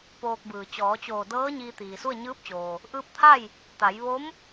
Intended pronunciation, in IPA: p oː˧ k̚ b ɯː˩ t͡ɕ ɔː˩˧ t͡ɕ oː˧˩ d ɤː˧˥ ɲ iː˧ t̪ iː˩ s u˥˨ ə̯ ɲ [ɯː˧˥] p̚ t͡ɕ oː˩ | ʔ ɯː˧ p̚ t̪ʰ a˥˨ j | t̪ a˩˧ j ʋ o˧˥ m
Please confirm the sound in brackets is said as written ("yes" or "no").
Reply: yes